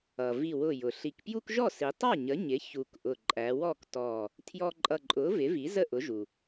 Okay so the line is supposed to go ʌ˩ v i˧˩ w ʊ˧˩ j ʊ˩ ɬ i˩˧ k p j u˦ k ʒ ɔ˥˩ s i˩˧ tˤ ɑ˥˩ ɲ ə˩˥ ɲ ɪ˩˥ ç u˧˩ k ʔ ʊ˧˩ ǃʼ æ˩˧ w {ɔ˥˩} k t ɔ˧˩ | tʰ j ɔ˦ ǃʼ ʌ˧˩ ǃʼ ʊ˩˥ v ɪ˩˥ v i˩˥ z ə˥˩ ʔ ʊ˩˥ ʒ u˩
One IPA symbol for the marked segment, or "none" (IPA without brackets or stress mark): ɔ˥˩